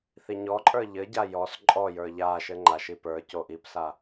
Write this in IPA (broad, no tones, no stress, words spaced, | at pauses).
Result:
θiɲɔǃʼə˞ ʎɘɟa jɔs ǃʼɔjə˞ ʎa ʃɘŋ͡ǃaʃi pə˞ coʔipsa